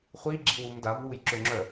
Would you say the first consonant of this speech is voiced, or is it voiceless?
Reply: voiceless